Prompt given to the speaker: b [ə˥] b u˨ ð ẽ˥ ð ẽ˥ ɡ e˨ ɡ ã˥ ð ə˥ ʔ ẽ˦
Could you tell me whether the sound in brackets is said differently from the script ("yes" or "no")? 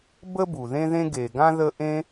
no